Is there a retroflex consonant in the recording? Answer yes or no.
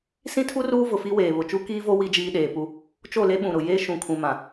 no